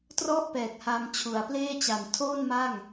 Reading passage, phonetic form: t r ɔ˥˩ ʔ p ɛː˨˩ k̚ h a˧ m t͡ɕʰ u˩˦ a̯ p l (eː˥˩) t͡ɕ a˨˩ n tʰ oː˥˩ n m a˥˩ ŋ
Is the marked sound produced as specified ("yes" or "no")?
yes